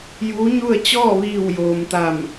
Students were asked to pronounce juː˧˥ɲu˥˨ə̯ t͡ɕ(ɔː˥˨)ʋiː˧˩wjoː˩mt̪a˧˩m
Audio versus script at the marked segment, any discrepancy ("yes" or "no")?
no